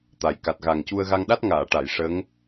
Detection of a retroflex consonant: present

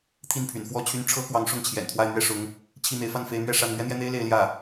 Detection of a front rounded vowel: present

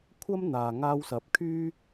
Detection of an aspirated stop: present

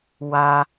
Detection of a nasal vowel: absent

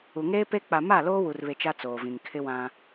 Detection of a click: absent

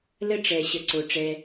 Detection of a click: present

